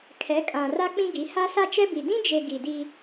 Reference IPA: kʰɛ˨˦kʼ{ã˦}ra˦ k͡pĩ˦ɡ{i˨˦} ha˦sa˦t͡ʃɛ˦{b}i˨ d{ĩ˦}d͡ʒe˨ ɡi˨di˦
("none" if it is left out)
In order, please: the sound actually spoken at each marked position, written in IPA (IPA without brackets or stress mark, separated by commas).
ã˨, i˨˦, b, ĩ˦